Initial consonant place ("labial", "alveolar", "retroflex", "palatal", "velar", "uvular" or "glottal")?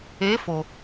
labial